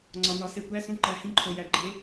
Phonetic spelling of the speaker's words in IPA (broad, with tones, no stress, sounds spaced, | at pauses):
ŋ͡ǀ ɒ˨ n ɒ˨˦ s e˨ kʷ æ˧˥˧ s ũ˥˧ ǃ æ˨˦ h ĩ˧˥˧ ǃʰ o˨ j æ˨ ɡ͡ǃ e˨˦